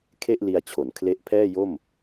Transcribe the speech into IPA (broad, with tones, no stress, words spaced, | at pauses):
kʰe˥˩ʔli˧a̯t͡ɕʰo˩˦n kʰle˦˥ʔpʰɛː˥˩ jo˥˩m